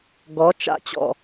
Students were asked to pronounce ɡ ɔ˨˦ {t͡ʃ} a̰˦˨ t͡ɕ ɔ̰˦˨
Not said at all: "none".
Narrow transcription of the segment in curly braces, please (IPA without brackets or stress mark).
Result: t͡ʃ